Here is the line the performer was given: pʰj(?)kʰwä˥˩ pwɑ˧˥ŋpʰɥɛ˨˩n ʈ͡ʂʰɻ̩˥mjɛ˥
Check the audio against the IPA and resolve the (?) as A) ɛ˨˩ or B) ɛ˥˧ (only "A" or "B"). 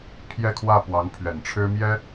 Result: B